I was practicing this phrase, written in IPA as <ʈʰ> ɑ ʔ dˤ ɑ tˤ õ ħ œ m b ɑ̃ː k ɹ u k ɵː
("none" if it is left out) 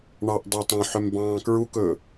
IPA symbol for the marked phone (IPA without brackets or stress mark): ɳ